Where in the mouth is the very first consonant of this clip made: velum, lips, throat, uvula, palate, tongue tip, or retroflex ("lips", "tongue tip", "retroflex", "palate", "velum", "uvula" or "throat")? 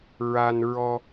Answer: tongue tip